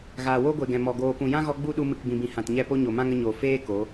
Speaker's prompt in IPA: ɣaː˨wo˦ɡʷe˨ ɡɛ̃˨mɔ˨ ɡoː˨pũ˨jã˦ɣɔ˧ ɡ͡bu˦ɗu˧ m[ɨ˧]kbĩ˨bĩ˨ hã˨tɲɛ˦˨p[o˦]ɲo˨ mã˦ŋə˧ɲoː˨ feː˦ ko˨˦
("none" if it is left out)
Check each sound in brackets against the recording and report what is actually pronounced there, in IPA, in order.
ɨ˨, o˦

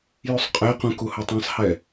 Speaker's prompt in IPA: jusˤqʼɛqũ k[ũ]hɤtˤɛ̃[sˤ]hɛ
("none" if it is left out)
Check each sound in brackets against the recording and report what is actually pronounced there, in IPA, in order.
u, sˤ

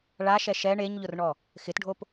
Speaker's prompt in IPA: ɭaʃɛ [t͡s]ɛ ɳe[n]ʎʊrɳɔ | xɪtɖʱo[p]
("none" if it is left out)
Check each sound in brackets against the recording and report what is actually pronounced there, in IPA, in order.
ʃ, ɲ, p

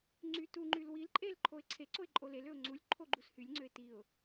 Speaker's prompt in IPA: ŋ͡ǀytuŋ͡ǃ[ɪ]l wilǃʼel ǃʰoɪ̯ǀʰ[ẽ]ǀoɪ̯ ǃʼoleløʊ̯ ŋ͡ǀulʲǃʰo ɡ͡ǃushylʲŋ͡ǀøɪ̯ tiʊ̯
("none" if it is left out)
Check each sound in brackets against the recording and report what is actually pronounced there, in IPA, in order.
y, e

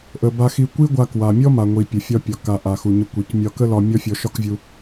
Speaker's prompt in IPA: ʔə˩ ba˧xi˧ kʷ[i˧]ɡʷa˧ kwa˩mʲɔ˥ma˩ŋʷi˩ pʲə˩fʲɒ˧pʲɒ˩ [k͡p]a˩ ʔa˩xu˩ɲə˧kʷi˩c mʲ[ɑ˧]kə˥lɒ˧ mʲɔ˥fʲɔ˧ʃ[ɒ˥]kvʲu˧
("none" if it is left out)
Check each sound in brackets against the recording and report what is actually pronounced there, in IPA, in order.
i˥, k, ɒ˧, ɒ˥

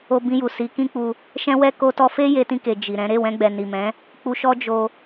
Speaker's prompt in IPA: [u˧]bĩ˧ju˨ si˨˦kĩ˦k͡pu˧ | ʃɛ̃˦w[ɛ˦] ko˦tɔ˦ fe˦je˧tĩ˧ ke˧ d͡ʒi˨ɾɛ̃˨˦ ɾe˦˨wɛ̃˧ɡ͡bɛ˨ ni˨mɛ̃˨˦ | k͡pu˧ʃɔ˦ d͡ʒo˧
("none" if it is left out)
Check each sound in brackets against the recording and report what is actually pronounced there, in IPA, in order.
o˧, ɛ˦

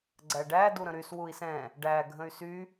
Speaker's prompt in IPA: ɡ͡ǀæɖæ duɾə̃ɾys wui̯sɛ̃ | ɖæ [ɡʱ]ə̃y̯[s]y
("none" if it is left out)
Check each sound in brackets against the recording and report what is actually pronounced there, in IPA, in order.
ɡʱ, s

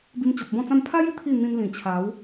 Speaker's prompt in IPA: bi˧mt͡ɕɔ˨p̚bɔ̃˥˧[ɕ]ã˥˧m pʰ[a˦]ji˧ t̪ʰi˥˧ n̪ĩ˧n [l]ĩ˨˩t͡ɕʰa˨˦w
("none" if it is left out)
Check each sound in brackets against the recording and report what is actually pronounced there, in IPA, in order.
t͡s, a˦, l

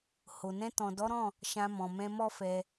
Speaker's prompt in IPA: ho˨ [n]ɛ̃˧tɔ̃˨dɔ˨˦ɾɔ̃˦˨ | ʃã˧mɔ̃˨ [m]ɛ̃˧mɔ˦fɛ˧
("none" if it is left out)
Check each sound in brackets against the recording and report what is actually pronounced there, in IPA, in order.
n, m

